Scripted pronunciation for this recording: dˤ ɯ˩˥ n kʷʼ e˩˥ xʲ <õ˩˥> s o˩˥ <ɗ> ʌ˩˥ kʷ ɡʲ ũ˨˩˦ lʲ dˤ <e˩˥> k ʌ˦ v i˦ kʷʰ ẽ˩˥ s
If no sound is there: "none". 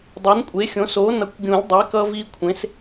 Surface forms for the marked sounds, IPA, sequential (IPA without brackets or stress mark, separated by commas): õ˩˥, n, e˩˥